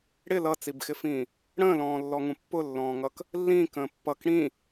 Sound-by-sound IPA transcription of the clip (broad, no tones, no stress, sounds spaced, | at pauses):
ɽ ɪ l ʌ t͡s i b x ɪ f ĩː | ɽ ə̃ː l ɔ̃ː lː ɔ ŋ ũ pː ʊ lː ɔ̃ː ŋ ʌ k | lː ĩː k ə̃ː pː ʌ k ɽ ĩ